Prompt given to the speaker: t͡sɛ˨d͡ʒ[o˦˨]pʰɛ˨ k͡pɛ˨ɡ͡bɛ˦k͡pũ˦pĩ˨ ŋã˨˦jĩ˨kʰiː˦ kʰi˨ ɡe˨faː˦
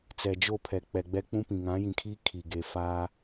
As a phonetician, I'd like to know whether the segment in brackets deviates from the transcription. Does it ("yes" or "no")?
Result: no